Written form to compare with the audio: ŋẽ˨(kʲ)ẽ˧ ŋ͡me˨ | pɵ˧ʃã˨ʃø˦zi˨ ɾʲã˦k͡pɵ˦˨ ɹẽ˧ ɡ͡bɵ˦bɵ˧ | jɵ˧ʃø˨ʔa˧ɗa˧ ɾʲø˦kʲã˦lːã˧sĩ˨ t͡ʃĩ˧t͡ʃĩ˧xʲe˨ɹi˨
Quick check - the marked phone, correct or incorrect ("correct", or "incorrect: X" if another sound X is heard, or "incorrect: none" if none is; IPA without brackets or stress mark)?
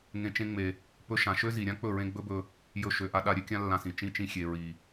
incorrect: t͡ʃ